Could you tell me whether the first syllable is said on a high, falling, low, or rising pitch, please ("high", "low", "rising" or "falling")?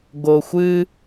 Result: low